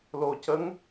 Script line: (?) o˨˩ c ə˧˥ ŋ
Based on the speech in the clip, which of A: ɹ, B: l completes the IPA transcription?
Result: B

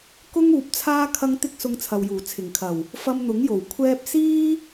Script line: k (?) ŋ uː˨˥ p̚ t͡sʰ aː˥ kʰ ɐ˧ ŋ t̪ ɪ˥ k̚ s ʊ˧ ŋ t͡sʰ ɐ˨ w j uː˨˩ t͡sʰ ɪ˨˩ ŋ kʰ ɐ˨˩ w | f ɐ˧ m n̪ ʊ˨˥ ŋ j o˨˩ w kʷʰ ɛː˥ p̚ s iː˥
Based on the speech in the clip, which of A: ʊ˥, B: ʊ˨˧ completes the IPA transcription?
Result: A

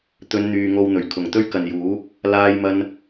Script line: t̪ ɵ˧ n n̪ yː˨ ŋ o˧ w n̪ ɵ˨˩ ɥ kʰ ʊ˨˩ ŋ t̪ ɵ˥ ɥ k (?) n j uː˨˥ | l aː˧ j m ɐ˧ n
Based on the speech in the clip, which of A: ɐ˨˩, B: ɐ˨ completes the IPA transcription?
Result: B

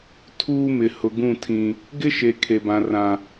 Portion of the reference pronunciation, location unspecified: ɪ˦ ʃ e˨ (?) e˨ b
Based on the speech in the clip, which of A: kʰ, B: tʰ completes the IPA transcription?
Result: A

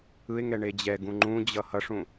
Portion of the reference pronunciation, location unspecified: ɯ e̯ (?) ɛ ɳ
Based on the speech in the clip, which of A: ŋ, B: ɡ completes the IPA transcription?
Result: A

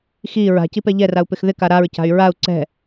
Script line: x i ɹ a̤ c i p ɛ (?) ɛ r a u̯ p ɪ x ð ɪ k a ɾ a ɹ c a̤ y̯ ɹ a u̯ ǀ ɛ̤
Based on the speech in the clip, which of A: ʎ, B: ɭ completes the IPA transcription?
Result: A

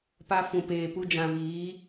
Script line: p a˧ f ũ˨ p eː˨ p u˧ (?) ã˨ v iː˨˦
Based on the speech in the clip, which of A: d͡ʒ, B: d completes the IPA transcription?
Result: A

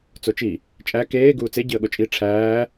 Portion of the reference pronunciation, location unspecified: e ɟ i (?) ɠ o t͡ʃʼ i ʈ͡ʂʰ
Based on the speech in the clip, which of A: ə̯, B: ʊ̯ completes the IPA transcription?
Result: A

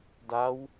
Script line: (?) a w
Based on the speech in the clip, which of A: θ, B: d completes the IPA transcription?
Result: B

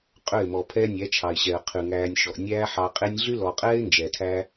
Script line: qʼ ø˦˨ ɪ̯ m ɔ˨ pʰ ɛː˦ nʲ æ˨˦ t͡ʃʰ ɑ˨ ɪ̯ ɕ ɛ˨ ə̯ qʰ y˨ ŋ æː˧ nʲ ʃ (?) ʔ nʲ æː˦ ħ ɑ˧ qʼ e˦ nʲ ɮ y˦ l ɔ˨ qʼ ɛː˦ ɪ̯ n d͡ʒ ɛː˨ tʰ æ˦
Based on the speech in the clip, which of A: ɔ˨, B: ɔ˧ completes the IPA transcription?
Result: A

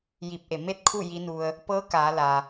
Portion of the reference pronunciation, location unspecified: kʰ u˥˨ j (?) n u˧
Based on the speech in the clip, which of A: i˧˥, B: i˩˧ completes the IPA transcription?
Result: A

